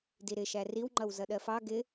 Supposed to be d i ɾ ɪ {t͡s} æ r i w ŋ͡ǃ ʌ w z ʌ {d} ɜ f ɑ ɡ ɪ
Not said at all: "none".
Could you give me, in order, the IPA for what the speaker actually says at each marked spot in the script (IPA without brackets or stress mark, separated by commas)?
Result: ʃ, ɗ